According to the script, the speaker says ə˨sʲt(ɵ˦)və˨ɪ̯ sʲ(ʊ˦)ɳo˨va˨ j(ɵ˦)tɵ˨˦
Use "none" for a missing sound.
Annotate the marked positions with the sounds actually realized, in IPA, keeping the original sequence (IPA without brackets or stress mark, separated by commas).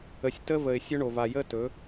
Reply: ə˦, ʊ˦, ə˦